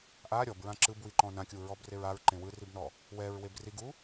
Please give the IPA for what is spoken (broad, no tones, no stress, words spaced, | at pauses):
ʔa ɾʲɔbɹã ǁɯbwiǃɔ̃ nãkʲuɹɔbreɹ aɹǃẽ wɯribnɔ | wɛɹweb riɡu